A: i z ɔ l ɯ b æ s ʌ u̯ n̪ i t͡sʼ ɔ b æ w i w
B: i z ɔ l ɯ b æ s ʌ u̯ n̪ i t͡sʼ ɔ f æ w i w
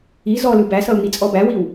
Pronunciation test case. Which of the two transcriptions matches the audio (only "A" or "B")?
A